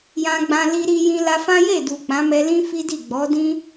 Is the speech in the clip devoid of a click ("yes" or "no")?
yes